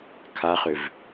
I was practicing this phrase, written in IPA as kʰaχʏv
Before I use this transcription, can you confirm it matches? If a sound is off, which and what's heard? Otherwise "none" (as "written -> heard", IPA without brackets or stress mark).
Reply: none